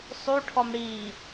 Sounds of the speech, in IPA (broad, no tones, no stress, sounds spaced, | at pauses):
sˤ u ʈʰ ɔ m ɽ i